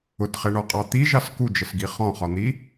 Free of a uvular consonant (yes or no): no